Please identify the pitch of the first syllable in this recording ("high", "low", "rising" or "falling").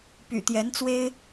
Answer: low